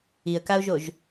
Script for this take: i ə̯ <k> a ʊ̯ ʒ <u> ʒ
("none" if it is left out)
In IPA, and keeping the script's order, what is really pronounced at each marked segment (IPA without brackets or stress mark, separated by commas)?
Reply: k, o